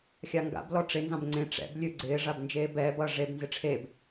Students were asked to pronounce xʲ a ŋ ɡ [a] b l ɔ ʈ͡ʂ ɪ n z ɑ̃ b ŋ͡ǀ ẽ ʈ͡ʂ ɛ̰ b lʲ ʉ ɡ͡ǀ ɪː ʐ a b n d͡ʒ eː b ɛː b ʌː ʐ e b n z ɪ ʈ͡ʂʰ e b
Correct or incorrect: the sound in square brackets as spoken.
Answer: incorrect: a̰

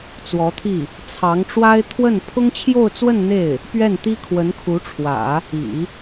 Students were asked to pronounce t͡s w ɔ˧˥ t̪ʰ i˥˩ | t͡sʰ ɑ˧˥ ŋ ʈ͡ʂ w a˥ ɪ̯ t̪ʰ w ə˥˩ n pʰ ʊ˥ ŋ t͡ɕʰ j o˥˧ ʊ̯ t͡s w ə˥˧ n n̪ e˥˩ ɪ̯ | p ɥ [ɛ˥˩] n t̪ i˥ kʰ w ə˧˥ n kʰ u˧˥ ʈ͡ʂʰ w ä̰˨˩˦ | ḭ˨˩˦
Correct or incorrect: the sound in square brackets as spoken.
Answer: correct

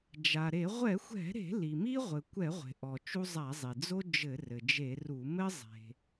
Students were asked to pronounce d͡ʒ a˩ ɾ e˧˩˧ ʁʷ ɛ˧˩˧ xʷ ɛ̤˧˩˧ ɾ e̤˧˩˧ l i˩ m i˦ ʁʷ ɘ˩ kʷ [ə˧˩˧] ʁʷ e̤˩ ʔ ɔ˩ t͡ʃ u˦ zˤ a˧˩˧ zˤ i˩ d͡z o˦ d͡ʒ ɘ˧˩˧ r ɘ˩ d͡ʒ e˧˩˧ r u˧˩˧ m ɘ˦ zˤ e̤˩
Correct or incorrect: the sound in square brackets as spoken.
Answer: incorrect: ɛ˧˩˧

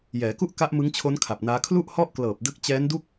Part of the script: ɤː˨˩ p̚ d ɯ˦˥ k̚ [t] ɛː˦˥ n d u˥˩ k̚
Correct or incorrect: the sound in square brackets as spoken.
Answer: incorrect: t͡ɕ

